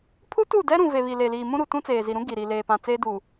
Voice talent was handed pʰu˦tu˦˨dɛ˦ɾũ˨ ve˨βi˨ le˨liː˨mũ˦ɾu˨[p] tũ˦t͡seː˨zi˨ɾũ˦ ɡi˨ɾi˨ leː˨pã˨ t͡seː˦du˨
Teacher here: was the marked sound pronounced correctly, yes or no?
no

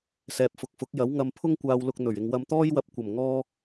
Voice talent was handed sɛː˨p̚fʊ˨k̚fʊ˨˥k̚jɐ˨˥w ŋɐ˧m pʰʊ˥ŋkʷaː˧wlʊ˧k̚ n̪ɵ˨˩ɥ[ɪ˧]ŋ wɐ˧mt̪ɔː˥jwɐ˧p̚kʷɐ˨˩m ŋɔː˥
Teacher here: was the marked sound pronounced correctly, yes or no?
yes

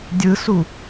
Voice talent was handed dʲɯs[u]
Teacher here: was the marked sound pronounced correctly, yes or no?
yes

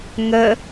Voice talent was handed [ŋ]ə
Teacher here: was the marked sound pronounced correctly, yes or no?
yes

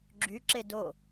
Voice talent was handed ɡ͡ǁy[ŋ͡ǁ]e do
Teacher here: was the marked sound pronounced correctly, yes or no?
no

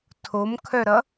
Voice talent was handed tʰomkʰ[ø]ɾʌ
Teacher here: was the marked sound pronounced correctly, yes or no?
no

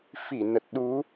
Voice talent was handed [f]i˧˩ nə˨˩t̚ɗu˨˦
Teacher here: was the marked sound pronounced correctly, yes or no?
yes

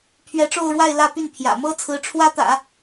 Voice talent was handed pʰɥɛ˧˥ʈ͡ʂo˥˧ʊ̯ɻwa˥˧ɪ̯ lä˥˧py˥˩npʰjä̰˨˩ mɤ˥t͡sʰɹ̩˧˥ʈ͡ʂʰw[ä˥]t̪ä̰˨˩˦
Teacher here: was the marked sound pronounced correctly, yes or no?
yes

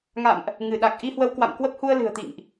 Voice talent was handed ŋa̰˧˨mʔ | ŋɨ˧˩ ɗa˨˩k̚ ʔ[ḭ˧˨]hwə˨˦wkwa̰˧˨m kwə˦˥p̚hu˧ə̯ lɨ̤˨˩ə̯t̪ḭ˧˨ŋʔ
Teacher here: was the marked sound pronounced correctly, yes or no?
no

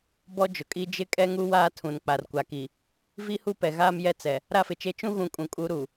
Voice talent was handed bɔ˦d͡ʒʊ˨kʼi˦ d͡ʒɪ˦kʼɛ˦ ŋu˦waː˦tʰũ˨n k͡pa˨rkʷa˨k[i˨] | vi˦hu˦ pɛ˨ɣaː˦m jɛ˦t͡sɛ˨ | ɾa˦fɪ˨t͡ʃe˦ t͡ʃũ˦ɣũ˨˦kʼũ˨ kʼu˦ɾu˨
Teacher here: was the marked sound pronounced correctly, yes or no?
yes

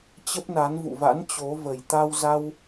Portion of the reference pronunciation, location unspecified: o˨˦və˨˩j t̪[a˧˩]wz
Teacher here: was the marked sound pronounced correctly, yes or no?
no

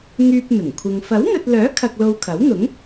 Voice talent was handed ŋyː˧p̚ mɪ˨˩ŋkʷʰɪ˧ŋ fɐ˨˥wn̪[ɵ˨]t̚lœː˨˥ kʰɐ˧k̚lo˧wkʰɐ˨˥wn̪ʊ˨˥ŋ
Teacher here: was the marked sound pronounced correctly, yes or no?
yes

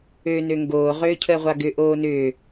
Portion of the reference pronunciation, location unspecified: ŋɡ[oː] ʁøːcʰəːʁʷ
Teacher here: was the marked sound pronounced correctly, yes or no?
yes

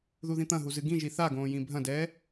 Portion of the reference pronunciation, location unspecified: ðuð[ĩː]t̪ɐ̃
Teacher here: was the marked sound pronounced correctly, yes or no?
no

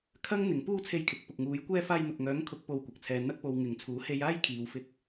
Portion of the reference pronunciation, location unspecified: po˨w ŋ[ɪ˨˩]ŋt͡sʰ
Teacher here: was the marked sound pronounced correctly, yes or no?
no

